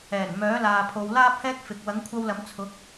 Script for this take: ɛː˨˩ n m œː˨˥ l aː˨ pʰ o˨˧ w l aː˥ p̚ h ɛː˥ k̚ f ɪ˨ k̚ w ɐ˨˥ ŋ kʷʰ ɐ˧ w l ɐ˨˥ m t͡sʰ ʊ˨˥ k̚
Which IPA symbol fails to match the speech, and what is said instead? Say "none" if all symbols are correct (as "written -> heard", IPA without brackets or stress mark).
none